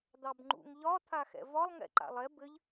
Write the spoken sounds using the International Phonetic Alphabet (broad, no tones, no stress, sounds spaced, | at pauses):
d̪ ɑ b ŋ͡ǃ ṵ ŋ ʎ ɒ t̪ʰ a x ɛ̰ v ɒ lˠ ŋ ɛ̰ ǃ a̰ lˠ ɛ b ɘ ʎ